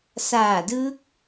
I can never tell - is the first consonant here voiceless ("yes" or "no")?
yes